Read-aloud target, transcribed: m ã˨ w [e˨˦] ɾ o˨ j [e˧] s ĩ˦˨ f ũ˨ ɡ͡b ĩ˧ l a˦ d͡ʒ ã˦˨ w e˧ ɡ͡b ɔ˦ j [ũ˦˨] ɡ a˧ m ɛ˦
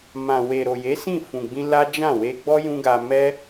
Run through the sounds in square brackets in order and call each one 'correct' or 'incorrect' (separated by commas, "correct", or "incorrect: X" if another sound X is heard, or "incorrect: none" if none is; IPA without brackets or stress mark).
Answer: incorrect: e˨, incorrect: e˨˦, incorrect: ũ˦